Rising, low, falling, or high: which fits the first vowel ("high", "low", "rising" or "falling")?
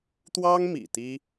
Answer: high